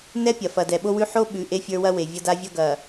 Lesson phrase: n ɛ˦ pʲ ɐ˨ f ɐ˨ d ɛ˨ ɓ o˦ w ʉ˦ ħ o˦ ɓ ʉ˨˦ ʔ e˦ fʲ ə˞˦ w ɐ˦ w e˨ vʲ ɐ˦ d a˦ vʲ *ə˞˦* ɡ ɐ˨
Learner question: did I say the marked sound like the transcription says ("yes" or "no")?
no